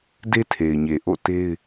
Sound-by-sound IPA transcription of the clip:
d e˦ tʰ e˨ ɪ̯ ɲ e˨ ʔ o̰˦˨ t e˦ ɪ̯

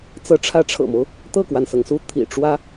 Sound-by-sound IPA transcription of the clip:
t͡s ɤ˧˥ ʈ͡ʂʰ ä˧˥ ʈ͡ʂʰ ɤ̰˨˩ m o˦ ʊ̯ | t̪ ɤ˥˩ k w a˩ n s ɤ˩ ŋ s u˥˩ t̪ʰ ḭ˨˩ ʈ͡ʂ w ä˥

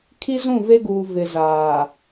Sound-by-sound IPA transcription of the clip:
kʰ i˦ z ũ˦˨ v e˦ ɡ uː˨ v ɪ˨ z aː˨

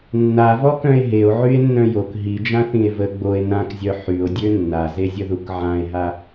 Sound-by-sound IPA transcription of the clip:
nː a v ɔ k œ̃ e̯ ɦ e o̯ ʕ y e̯ nː œ̃ j o k ɦ i d͡ʒ ã θ ĩ e̯ v ə ɡ͡b o e̯ n ã k zʲ œ ħ y o̯ dʲ ø nː a z e zʲ ə ð u k ʕ ã e̯ ɦ a

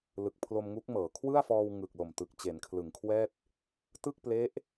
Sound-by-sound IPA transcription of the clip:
l ɯ˨˩ k̚ pʰ l o˧ m ŋ u˦˥ k̚ m ɤː˩˦ kʰ w ɯ˥˩ a̯ f ɔː˧ w ŋ ɯ˨˩ k̚ l o˨˩ m t ɯ˨˩ k̚ t͡ɕ e˩˦ n kʰ l ɯ˩˦ ŋ kʰ w ɛː˥˩ t̚ | t ɯ˥˩ k̚ p l e˦˥ ʔ

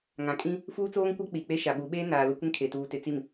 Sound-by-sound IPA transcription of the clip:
ŋ ã˨ kʼ ĩ˦ | f uː˦ t͡s oː˦ ŋ kʷ a˦ k͡p i˨ k͡p e˦ ʃ a˨ ɓ u˨˦ ɓ eː˦ n aː˨ l ʊ˦ kʷ ɪ˦ ŋ kʰ e˨ t uː˨ t ɪ˨ t͡s i˨ m

